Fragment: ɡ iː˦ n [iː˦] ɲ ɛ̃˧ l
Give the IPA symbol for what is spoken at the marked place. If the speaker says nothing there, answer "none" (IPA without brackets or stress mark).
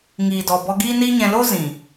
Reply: iː˦